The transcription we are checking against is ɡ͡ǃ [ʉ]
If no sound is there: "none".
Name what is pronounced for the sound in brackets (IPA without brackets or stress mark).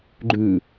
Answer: ʉ